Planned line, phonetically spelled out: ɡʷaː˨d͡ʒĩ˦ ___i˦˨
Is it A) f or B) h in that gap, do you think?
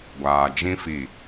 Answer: A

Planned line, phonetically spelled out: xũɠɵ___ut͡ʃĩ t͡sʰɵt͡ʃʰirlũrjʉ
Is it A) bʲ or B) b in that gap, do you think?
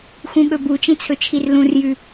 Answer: B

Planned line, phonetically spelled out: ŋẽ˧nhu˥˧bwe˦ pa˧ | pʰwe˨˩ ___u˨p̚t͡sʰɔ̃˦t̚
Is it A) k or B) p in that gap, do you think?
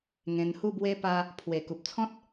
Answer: A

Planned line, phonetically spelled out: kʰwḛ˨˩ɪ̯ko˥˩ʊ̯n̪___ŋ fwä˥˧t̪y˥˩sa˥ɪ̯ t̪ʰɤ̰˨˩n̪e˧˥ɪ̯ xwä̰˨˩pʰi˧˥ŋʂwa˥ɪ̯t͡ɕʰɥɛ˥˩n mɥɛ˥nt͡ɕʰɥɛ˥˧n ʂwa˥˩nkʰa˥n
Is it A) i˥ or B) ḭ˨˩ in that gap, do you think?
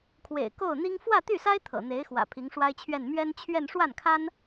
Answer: A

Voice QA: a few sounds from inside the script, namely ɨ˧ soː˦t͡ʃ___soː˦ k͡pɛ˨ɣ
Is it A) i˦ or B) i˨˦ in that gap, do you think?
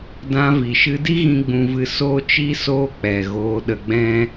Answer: A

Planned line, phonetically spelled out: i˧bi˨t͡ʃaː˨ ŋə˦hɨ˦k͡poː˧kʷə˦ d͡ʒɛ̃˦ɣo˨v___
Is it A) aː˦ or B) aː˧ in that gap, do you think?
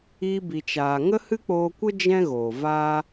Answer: A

